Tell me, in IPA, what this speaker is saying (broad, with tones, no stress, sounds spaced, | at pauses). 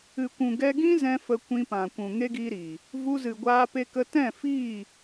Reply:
ɨ˨ kʷ ũ˨ ɡ ɛ˧ ɡ ĩ˦ z ɛ̃˧ f ə˧ kʷ ĩ˧ p ã˨ kʷ ũ˨ ŋ e˦ ɡ i˦ ɾ iː˨ | v u˧ z ɨ˨ ɡʷ aː˧ p e˧ k ə˧ t ɛ̃˦˨ f iː˦˨